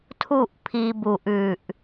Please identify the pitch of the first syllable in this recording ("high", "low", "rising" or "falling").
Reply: falling